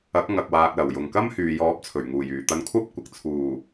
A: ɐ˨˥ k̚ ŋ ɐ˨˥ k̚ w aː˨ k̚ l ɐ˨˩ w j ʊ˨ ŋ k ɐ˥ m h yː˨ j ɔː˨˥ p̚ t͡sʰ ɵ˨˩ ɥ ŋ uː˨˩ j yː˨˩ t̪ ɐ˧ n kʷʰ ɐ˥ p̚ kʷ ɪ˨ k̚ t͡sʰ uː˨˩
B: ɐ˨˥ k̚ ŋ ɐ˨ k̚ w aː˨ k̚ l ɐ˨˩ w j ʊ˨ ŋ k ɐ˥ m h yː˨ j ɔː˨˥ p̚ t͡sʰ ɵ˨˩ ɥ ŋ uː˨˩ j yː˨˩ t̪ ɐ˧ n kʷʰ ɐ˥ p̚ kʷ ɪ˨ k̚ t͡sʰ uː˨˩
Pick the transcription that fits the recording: B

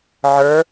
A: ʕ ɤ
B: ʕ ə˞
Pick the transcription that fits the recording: B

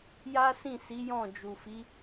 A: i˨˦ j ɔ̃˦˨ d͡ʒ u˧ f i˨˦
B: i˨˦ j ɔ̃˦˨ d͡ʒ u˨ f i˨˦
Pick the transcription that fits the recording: B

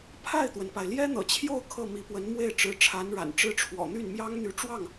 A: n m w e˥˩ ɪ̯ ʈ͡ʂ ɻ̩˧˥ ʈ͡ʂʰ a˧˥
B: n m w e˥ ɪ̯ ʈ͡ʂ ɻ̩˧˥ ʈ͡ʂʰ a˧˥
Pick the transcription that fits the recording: A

